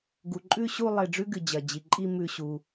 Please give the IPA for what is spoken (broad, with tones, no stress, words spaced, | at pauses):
ɡu˩ǃʼʉ˥˧ɕu˥˧ lˠe˧˩ɖ͡ʐʉ˥ɡɨ˩ d͡ʑɐ˩d͡ʑi˩ǃʼi˥˧mʉ˧˩ ɕu˩